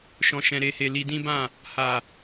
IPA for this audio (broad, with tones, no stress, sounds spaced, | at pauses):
ʃ ɔ̃˧ ʃ ɛ̃˧ ɾ e˨ h e˨ l i˧ d ĩ˦ b ã˦˨ | h a˨